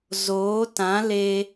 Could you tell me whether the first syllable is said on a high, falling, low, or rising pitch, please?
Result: rising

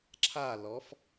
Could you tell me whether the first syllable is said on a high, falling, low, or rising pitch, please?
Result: falling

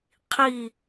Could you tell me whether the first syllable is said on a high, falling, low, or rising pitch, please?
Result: falling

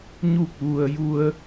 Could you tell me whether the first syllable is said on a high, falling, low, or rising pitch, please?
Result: falling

